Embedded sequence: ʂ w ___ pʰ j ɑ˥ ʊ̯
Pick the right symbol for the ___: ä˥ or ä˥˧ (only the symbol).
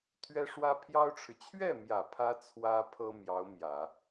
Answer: ä˥